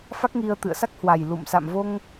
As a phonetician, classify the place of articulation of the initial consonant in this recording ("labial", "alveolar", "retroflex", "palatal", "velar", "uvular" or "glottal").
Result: labial